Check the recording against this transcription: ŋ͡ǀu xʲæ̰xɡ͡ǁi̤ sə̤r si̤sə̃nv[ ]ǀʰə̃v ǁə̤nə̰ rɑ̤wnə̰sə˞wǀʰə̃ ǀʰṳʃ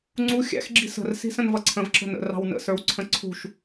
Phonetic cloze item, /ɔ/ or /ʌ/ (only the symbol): ʌ